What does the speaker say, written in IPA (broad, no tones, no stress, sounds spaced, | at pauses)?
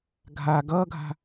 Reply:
ɡʱ a ɡ ʌː ɡʱ a̤